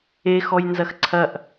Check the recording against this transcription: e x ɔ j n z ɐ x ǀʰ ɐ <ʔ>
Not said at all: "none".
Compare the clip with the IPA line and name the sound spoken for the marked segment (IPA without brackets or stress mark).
ʔ